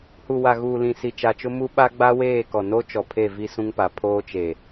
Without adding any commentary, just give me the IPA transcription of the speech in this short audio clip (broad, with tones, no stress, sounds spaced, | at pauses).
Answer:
h u˨ w a˨ ɣ uː˨ l ĩ˨ s i˨ t͡ʃ a˨ t͡ʃ ʊ˦ m u˦ ɓ a˦ ɡ͡b a˦ w eː˦˨ k ɔ˨ n o˦ t͡ʃ ɔ˨ pʰ e˦˨ v i˦ s ũ˦ ŋ p a˨ pʰ oː˦ t͡ʃ e˨